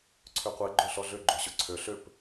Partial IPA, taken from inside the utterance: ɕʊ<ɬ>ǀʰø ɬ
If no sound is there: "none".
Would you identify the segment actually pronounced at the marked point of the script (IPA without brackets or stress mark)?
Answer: none